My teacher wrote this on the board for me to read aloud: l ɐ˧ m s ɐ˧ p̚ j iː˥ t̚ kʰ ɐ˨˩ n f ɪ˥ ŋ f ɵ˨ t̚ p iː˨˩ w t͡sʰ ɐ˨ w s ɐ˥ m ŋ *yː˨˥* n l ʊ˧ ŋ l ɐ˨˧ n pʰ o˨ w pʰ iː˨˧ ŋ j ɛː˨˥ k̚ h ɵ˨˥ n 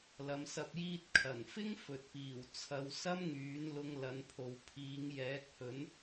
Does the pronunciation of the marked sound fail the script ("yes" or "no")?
no